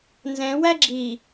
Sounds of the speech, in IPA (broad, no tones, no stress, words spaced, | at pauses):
nzɛ̃ wæɡ͡ǁi